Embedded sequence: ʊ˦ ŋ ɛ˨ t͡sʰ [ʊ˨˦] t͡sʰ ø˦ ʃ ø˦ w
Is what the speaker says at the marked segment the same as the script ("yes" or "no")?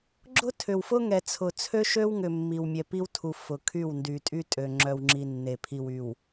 no